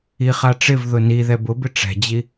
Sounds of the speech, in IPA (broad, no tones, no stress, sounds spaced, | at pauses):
i χ a ʈ͡ʂ ɪ v ð ʊ n i ð ɛ b ʊ b ɪ ʈ͡ʂ ɛ̤ d͡ʑ i